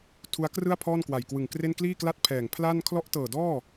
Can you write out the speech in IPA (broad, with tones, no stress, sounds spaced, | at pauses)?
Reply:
tʰ u˦˥ a̯ k r ɯ˥˩ a̯ pʰ ɔː˥˩ n k w a˨˩ j k w ɯ˨˩ ŋ k r e˥˩ n k l iː˥˩ k l a˥˩ t̚ pʰ ɛː˨˩ ŋ pʰ l a˥˩ n kʰ l ɔ˦˥ ʔ t ɤː˨˩ d ɔː˥˩